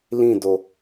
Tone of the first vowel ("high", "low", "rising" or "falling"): falling